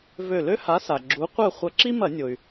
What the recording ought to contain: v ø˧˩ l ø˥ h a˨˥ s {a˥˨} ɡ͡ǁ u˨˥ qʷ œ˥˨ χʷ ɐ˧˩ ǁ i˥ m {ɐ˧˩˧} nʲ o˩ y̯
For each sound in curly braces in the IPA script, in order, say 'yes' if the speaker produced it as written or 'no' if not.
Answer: no, yes

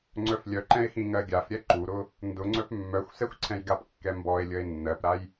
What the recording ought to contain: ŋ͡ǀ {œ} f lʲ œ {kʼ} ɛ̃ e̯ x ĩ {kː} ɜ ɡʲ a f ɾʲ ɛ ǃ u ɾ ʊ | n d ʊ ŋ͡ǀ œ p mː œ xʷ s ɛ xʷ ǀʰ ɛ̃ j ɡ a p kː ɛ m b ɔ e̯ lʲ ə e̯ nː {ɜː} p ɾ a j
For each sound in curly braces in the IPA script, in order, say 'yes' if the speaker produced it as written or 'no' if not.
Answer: yes, no, no, no

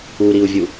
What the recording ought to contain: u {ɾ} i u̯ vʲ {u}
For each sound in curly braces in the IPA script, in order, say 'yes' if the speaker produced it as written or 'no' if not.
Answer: yes, yes

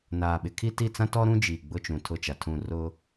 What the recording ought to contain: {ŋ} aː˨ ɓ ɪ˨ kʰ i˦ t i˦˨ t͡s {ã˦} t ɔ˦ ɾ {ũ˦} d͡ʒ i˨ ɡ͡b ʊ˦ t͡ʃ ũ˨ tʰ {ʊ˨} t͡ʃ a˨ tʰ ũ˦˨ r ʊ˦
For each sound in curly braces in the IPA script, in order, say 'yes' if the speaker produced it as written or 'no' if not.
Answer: no, yes, yes, no

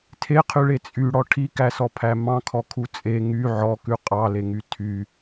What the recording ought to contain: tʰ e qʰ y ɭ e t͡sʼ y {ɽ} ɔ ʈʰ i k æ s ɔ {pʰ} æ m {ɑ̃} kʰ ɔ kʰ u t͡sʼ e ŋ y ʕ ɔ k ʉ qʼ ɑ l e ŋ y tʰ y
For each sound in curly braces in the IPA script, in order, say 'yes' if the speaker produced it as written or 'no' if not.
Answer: yes, yes, yes

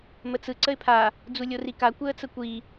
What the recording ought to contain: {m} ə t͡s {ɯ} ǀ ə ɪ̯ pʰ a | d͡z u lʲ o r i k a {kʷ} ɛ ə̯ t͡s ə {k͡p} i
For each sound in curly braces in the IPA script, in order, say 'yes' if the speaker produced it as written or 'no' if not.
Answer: yes, yes, yes, no

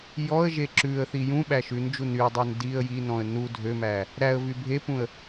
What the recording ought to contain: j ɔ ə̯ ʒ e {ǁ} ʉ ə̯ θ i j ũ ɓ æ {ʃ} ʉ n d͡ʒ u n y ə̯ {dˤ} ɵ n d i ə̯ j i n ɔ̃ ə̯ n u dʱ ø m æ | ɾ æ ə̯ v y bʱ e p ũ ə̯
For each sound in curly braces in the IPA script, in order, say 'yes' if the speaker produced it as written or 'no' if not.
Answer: yes, yes, yes

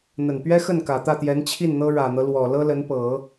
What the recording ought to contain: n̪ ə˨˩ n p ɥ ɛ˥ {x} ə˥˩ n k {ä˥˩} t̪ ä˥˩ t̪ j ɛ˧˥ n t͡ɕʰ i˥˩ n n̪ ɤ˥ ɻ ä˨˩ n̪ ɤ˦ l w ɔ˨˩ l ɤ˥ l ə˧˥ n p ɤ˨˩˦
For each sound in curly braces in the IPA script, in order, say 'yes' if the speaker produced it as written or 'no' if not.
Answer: yes, no

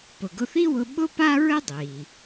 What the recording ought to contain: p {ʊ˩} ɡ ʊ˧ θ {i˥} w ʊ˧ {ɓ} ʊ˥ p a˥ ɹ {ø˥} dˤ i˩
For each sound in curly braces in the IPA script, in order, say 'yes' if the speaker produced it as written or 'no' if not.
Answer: yes, yes, yes, no

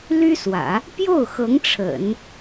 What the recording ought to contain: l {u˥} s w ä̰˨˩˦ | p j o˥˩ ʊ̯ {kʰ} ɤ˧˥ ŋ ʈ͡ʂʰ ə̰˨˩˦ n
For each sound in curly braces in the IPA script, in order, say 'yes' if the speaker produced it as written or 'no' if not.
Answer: no, no

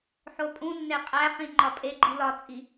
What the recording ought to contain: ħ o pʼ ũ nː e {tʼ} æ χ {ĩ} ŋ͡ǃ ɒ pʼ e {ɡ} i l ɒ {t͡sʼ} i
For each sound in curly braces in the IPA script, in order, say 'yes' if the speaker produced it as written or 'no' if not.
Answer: no, yes, no, yes

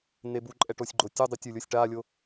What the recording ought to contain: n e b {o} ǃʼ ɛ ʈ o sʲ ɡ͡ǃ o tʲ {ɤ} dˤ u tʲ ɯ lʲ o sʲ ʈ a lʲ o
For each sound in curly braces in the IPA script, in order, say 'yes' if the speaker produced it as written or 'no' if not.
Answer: no, no

